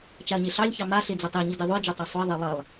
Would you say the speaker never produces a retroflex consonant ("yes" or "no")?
yes